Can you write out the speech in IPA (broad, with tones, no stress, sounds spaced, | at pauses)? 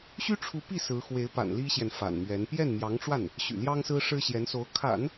ɕ y˥ ʈ͡ʂʰ u˧˥ p i˥˩ s ɹ̩˧˥ x w e˧˥ ɪ̯ p a̰˨˩ n l i˥ ɕ j ɛ˨ n f a̰˨˩ n m ɥ ɛ˧˥ n p j ɛ˥˩ n m j ɑ˧˥ ŋ ʈ͡ʂ w a˥˩ n | ɕ y̰˨˩ l j ɑ˥ ŋ s ɹ̩˥ ʂ ɻ̩˥ ɕ j ɛ˧˥ n s o˧˥ ʊ̯ kʰ a̰˨˩˦ n